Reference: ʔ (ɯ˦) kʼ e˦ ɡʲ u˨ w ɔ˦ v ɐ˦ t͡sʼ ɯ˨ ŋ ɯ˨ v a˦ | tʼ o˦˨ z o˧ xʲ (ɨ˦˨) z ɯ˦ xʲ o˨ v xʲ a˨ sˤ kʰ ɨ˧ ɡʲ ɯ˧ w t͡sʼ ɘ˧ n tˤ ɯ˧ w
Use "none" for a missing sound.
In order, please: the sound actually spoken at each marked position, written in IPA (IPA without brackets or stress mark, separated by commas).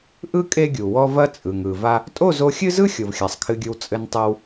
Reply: ɯ˦, ɨ˦